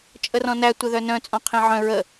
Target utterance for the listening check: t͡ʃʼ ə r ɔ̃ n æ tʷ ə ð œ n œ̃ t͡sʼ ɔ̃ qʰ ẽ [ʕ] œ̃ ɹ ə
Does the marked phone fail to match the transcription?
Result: no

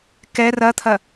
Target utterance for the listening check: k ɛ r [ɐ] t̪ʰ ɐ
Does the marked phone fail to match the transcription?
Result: no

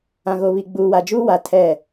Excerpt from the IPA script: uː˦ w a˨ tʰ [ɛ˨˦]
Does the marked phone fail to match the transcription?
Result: yes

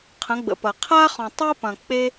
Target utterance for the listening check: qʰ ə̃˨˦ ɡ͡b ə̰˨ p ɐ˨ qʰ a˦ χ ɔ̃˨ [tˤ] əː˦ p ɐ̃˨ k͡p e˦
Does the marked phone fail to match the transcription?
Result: no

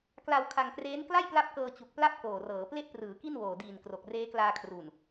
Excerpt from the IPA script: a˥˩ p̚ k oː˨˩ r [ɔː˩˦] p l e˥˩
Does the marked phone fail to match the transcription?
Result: yes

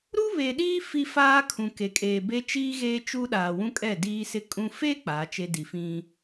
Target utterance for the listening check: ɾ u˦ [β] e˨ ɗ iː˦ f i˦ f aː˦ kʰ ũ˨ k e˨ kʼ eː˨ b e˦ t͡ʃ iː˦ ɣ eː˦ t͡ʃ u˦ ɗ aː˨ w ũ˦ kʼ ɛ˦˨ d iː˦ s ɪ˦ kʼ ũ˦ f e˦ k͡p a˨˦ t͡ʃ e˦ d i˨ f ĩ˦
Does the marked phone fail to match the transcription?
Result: no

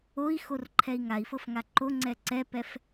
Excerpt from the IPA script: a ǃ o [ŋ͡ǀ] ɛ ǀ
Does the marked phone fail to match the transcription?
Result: no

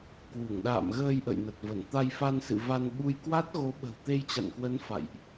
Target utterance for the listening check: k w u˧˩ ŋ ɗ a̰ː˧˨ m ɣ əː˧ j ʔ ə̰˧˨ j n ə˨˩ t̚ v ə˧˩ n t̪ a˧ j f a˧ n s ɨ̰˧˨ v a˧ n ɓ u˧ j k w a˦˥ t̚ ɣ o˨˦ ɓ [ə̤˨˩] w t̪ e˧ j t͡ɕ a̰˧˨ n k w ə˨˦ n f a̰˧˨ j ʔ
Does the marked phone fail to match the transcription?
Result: no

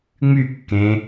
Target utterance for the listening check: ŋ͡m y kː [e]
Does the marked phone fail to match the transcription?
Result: yes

